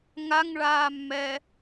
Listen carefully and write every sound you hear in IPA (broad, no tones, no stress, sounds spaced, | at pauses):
ŋ a ŋ ɭ aː mː ɛ